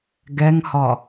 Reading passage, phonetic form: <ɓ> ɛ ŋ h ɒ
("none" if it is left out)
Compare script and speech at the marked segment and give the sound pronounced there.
ɡ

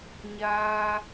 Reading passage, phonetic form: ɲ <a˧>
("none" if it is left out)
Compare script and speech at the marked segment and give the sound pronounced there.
aː˧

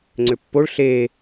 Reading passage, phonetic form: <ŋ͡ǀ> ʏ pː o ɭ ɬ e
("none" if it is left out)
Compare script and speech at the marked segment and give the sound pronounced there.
ŋ͡ǀ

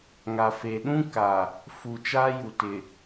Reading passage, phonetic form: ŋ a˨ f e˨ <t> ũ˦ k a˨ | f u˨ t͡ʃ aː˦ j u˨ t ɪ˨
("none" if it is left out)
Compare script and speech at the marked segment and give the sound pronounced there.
ɗ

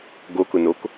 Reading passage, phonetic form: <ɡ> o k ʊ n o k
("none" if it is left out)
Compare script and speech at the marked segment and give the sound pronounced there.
ɡ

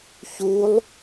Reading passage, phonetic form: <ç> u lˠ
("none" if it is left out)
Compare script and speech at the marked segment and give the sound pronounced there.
ç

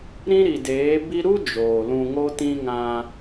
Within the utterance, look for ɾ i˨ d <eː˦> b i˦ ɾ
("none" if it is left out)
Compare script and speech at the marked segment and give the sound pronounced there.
eː˨˦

